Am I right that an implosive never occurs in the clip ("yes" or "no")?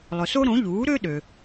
no